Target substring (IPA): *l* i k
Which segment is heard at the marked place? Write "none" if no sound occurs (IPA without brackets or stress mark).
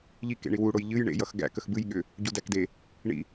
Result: ʎ